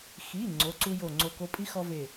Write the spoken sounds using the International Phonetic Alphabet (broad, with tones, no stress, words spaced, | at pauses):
xi˩˧˩ ŋ͡ǀo˩˧˩ǀu˦jo˧˩ ŋ͡ǀo˧˩ko˦ pʼi˦ xɔ˦ve˧˩